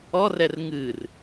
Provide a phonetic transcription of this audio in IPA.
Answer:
ɔrɛr ŋɨr

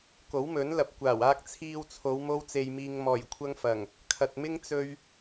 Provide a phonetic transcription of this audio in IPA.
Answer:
ko˨˥wmɵ˨˥nlɐ˨˥p̚kʷaː˨˩w aː˧k̚t͡sʰiː˧wt͡sʰo˨˧w mo˥wt͡se˧jmiː˧ŋ mɔː˨˩jkʷʰɐ˧ŋfɐ˨˩ŋ | kʰɐ˨t̚mɪ˥ŋ t͡sɵ˥ɥ

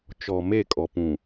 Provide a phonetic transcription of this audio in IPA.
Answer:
t͡ʃɔ˨me˦˨ kʼɔ˨pũ˨

